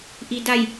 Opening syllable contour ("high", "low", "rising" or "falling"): low